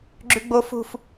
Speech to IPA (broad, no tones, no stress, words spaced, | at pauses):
ɡ͡ǁʉɡ͡bo fṳf